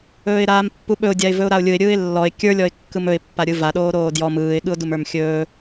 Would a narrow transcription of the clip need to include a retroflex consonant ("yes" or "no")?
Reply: no